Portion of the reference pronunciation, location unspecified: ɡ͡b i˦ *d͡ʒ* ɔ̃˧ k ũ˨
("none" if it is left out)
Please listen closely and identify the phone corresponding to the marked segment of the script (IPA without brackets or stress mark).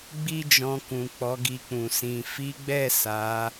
d͡ʒ